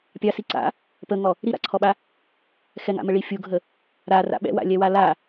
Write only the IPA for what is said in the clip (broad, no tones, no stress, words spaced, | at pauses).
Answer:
pʲɑsi ǀa̰ | pəŋɔ | ɾiɾa̰ǀʰɔɓa | xɛŋa̰məɭi fʲuɡʱə | ɾara̰ ɓɛ̰wa̰lʲɛwa la